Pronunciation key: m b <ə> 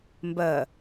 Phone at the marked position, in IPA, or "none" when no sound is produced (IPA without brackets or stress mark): ə